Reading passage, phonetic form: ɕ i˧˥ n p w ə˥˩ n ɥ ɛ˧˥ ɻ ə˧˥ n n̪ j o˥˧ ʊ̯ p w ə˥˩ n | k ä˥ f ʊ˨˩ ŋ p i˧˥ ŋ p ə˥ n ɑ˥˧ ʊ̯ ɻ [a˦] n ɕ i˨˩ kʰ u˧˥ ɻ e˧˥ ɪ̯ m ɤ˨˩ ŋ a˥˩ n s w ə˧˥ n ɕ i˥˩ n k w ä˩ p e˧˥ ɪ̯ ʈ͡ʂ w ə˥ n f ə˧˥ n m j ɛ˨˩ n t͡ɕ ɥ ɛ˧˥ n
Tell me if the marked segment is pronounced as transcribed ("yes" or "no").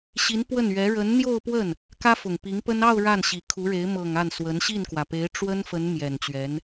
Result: no